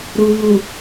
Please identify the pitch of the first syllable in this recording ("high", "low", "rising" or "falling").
low